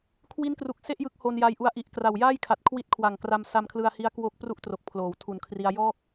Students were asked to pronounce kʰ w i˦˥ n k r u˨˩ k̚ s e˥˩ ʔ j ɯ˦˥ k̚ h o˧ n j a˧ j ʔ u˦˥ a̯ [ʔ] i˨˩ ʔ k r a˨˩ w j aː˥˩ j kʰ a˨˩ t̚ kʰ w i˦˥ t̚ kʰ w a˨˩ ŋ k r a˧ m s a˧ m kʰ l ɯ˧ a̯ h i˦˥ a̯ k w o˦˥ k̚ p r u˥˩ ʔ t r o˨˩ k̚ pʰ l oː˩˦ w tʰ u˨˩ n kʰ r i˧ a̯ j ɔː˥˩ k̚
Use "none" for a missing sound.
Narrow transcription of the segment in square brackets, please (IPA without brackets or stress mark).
ʔ